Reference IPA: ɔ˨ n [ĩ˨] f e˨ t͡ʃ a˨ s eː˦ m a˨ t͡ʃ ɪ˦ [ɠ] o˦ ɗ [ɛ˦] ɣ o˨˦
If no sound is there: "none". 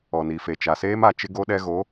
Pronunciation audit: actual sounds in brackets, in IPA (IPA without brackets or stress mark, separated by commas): i˨, ɡ, ɛ˦